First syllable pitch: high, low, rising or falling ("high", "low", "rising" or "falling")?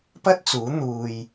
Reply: high